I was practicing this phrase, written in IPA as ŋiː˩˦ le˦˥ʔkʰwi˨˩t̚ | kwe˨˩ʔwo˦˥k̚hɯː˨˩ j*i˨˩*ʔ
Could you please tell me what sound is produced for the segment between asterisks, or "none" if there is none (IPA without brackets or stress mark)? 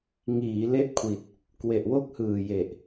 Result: e˨˩